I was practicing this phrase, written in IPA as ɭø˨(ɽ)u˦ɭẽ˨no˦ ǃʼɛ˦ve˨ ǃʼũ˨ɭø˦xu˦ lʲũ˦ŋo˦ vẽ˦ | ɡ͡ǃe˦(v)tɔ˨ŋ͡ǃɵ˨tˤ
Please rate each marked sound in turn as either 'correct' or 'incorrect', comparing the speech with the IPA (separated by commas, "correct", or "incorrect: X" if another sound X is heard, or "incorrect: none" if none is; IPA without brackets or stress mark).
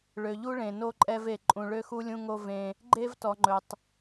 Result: incorrect: ʎ, correct